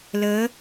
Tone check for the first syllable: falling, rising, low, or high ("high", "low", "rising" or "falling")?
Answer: rising